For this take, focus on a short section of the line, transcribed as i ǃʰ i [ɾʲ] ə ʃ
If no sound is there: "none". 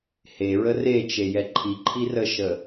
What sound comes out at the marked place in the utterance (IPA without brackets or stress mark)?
r